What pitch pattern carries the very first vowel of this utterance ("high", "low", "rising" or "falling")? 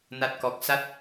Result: low